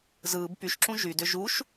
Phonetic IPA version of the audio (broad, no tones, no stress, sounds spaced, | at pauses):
z ɯː b p y ʃ ǁ ũ ʒ y d ʏ ʒ u ʃ